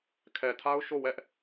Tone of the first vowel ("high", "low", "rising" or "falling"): low